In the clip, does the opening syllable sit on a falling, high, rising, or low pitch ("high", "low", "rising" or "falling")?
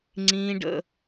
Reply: high